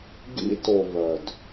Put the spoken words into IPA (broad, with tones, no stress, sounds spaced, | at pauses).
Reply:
ɡ ḭ˧ t o˨ β œ˨ d